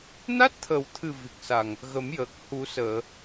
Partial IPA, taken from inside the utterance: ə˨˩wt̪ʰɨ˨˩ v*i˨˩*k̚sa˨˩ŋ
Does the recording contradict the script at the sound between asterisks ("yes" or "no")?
no